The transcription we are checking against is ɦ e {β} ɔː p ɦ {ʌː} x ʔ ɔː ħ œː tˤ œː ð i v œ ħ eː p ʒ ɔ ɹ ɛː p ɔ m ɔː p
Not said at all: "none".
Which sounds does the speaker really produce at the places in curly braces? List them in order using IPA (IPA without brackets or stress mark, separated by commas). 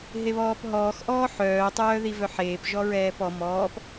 β, ɔː